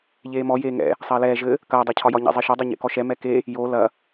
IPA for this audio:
ʎeːmɔ jeːŋɛ̰ | sˤɐːlɛː ʒɘ | kɐː dˤɛcʰɒjɒ ɲɛ̰zˤeʃɔ dˤɛɲḛkɔʃɛ mɛke | jo lɐ

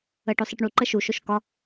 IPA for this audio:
əʈosˤ ɨʈɳuǃə ʃuʃoʃ kɒ

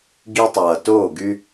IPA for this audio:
ɡi˧tˤʌː˨toː˦˨ ɡy˧

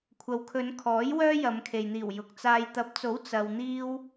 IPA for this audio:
kʷʰɐ˨wkʰɵ˨˧nkʰɔː˨˥j wœː˥jɐ˨˧mkʰe˨jn̪iː˨˩w jʊ˨k̚t͡saː˧j t̪ɐ˨˥p̚t͡so˨˥w t͡sɐ˧wn̪iː˥w

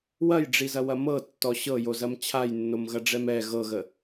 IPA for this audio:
wɐjɖ͡ʐizɐwɐ mɤtːɔ ɕɤjozɐm t͡ɕʰajnːomɣɐɖ͡ʐɛm ɛ ɣɤɣə

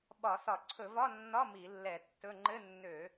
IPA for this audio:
ɓɒ˧˩˧sɒ˧˩˧ ǀʰɵ˧˩˧vɒ˧˥˧nːɒ˧˥˧ mi˧˩˧lːɛ˧˩˧tːɵ˧˥˧ ŋ͡ǃɘ˧˥˧nːø˧˩˧

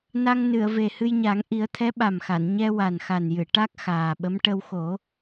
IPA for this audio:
na˧ŋnɨ˨˩˨ə̯ve˨˩ hɨ˧jɲa˨˩˦ŋ ʔi˨˩˦ə̯t̪ʰɛ˧˥ ɓa˨˩mxa˨˩˨n ɲɛ˧wa˨˩nxa˨˩njɨ˨˩˨ ʈa˦˥k̚xaː˨˩ɓə˧˥m ʈə˧wxo˨˩˦

